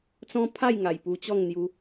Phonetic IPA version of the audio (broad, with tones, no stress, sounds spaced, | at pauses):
t͡s ɔ̃˦ pʰ a˥˧ j ŋ a˨˩ j p u˧ t͡ɕ ɔ˥˧ ŋ n̪ j u˧